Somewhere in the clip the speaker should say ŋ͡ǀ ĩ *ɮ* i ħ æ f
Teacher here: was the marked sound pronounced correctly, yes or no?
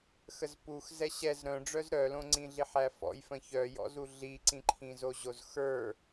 yes